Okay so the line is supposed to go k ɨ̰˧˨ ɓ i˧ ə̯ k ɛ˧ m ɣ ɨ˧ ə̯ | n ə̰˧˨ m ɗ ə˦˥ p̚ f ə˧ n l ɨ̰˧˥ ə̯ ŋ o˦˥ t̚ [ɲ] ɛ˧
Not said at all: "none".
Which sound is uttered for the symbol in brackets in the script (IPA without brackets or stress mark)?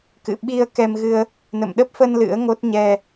ɲ